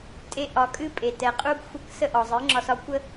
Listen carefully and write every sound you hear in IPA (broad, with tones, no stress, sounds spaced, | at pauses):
tʼ e˧ ʔ ɒ˨ kʼ ɨ˦ pʼ e˨ t ɛ˨ qʼ u˦ ɡ xʷ ə˦˨ k s ə˦ ʔ ɒ˨ zˤ ɨ˨˦ ŋ͡ǁ ɒ˧ s ɒ˦ kʷ ə˦